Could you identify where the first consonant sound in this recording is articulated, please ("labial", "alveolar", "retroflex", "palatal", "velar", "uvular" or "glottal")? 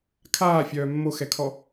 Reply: velar